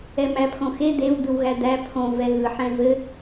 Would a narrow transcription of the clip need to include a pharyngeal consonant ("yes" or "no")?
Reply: yes